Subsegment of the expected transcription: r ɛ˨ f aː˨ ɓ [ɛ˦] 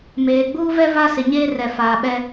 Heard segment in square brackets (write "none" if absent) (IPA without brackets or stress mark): ɛ˦